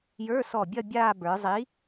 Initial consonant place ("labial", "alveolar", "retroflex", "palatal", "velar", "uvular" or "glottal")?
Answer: palatal